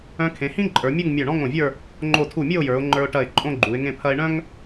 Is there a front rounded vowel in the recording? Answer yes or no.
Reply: yes